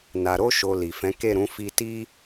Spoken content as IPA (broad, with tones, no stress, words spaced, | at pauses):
na˨ɾo˧ʃo˨ li˨fɛ̃˨˦ke˦˨ɾũ˨˦ fi˧ti˦